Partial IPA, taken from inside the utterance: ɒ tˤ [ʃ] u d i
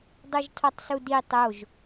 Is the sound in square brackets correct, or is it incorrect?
incorrect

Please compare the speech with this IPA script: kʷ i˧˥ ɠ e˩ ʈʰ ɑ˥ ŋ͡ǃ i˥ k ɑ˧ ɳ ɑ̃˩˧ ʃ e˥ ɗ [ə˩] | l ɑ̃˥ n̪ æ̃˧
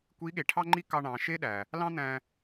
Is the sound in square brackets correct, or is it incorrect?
incorrect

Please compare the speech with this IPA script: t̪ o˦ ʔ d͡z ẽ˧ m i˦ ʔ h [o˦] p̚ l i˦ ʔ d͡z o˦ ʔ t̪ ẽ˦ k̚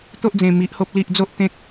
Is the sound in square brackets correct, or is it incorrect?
correct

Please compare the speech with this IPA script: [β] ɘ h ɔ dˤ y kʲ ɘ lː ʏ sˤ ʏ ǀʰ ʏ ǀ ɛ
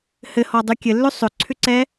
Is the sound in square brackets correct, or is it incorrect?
incorrect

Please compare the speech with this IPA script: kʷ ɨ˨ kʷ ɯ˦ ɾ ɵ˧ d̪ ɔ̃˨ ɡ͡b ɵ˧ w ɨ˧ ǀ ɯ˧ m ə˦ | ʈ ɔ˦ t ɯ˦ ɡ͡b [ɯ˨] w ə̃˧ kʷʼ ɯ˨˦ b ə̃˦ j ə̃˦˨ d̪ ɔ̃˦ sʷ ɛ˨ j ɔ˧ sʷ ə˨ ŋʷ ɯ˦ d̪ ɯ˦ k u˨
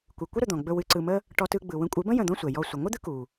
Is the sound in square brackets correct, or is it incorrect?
correct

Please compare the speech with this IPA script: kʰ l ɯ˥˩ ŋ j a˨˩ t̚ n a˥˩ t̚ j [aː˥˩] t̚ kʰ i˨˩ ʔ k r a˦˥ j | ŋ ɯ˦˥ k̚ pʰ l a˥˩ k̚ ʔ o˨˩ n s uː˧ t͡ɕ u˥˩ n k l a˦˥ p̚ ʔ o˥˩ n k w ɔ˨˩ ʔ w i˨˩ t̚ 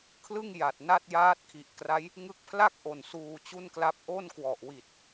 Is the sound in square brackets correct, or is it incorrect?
incorrect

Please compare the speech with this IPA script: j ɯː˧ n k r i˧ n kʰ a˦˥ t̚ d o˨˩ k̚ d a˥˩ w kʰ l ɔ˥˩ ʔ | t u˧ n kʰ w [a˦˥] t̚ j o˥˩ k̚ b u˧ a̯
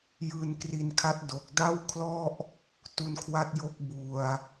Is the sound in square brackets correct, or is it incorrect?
correct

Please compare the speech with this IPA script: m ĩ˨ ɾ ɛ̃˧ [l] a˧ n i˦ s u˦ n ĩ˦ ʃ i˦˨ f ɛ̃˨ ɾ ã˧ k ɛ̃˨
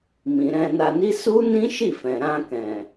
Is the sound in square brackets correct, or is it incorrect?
incorrect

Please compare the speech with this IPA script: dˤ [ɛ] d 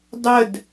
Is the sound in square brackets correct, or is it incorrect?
incorrect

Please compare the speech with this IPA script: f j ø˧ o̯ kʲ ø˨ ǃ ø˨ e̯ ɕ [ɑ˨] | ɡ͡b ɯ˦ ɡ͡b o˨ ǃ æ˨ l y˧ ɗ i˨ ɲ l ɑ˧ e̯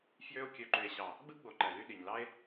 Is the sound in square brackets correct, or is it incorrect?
correct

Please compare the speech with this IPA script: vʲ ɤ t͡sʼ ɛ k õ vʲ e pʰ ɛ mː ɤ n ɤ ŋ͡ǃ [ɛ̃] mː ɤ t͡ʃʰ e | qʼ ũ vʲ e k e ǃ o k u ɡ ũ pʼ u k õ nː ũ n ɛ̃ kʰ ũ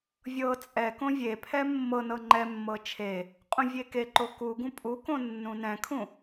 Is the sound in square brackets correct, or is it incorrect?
incorrect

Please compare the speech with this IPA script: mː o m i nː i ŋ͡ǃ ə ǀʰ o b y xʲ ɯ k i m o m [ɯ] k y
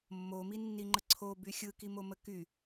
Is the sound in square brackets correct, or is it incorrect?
incorrect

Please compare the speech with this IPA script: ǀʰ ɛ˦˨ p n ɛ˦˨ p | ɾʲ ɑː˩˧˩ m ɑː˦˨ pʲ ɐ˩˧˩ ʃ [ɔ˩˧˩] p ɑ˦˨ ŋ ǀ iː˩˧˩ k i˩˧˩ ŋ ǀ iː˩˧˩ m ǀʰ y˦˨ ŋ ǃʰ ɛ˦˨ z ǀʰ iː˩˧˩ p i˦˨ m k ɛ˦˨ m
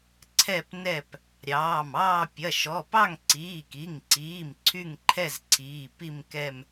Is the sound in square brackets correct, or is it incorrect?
correct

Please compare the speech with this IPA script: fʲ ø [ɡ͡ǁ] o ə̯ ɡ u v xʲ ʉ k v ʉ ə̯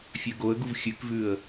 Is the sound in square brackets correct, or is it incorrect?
incorrect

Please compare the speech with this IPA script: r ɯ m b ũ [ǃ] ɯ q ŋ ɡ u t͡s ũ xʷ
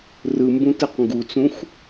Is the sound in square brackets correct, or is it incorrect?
incorrect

